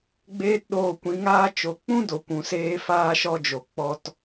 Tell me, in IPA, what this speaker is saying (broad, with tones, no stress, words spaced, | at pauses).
ɡ͡beː˦tɗoː˧kʷĩ˨˦ŋaː˦ t͡ʃo˨k͡pũ˦do˨ kʷũ˨seː˧faː˧ʃɔ˧ d͡ʒo˨ k͡pɔ˧t